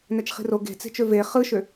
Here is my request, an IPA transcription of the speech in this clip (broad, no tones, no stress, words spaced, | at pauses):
næt͡ʃχi̤ro ɡe̤t͡se̤t͡ʃø ve χɯʃø